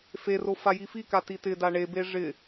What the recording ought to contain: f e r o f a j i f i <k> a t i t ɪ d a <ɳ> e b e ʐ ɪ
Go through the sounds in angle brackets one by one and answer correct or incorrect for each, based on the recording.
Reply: correct, correct

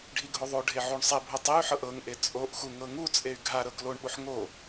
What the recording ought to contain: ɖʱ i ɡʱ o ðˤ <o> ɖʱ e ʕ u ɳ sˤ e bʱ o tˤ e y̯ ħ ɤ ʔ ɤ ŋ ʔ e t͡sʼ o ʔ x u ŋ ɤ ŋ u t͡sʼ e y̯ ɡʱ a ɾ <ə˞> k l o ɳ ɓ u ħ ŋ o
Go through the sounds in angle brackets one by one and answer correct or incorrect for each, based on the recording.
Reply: correct, incorrect

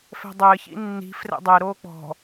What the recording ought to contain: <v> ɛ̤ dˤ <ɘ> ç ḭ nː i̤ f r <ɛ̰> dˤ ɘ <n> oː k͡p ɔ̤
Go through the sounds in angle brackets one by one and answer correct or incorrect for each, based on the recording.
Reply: incorrect, incorrect, correct, incorrect

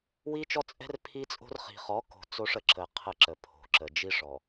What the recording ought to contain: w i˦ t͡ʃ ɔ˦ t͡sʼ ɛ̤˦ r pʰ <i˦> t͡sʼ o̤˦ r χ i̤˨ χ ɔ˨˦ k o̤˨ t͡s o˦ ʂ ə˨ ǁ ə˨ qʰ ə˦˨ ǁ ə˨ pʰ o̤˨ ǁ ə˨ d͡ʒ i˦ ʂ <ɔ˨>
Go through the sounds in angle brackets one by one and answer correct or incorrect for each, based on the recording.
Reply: correct, correct

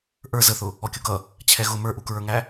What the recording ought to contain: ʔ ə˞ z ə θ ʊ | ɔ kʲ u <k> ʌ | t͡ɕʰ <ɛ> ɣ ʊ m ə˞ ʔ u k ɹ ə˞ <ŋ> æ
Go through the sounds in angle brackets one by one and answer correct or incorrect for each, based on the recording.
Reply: correct, correct, correct

